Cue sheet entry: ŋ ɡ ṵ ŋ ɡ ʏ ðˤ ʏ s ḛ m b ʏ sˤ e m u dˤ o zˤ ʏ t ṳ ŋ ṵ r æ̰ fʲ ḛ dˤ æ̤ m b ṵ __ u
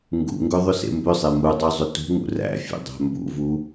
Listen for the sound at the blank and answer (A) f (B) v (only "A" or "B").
B